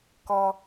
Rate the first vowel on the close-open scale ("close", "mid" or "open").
mid